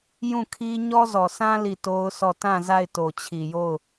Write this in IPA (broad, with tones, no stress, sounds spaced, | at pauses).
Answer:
j ũ˦˨ kʰ i˦ ɲ ɔ˦ z ɔ˨ s ã˦ l i˦˨ t o˦ ʊ̯ sʰ ɔ˦˨ t ã˦˨ z a˦˨ ɪ̯ t o˨ t͡ɕʰ i˨ j o˦˨ ʊ̯